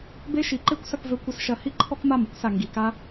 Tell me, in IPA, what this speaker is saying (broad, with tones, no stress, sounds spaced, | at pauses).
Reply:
b e˦ ʃ i˨˦ ǃ e˦ kʷ s ɐ˦ k v ø˦ kʷ ɐ˦ s ʃ ɐ˧ h i˦ ǃʰ ɔ˦ k m a˦˨ m u˦ k s a˨ ŋ ɡ i˨ k a˧